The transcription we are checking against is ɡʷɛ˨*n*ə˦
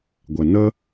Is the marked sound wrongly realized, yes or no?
no